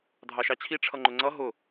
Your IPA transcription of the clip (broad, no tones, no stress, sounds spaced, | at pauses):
dʱ ɑ ʃ ɑ t͡ɕʰ i ʈ͡ʂʰ ʌ ŋ͡ǃ ʊ ŋ͡ǀ ʌ ɦ ʊ